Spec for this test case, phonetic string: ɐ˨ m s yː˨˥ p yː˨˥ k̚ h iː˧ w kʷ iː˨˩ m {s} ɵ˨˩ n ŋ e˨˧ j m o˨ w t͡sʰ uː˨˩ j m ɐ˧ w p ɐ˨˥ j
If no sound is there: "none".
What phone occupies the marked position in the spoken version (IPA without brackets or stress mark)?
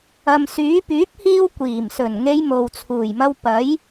s